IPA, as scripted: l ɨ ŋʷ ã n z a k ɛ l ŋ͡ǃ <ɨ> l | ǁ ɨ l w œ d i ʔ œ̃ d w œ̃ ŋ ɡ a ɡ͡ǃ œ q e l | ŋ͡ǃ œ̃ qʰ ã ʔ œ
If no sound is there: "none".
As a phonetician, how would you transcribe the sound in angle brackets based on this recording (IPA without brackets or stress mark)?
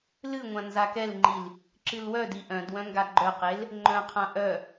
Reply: i